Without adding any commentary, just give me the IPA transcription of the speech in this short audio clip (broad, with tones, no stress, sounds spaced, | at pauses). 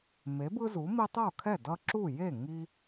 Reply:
m e˩˥ b ɯ˦ z u˩˥ m i˦ tˤ o˥˩ kʰ ɛ˥˩ d ʌ˦ ǁ u˥˩ j e˥˩ ŋ i˦